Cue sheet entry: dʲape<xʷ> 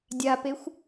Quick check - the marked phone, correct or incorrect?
correct